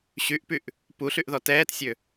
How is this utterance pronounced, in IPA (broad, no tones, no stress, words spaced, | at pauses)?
ɕyʔpyʔ | puɬyʔðɔ tɛːtsʲø